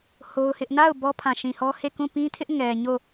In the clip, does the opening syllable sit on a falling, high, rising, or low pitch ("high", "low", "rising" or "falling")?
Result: high